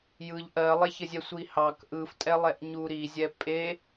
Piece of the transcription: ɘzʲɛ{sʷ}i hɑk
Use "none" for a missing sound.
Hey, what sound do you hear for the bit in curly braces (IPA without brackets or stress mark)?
sʷ